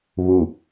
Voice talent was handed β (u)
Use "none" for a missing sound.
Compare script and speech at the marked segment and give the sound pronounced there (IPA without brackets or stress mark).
u